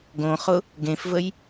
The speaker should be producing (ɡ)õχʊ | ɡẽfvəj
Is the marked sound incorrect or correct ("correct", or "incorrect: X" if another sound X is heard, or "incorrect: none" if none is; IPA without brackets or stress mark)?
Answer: correct